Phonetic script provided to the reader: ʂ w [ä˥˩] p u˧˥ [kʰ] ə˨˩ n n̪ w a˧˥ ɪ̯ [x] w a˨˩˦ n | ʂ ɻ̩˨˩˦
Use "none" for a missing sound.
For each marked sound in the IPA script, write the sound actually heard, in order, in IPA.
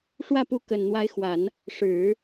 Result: ä˥˩, k, x

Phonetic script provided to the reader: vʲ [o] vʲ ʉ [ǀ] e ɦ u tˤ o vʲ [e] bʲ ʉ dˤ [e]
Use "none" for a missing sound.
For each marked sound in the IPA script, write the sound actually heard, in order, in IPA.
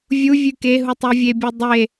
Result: u, k, e, e

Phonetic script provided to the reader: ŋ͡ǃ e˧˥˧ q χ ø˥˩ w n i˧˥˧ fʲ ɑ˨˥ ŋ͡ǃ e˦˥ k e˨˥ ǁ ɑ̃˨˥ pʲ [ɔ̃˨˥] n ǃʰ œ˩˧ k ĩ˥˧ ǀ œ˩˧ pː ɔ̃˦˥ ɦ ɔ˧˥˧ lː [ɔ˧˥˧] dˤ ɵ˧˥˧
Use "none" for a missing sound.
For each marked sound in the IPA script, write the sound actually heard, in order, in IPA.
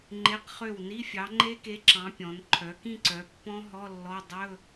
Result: ɔ̃˩˧, ɔ˧˥˧

